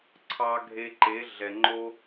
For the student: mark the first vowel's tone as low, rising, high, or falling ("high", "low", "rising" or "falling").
high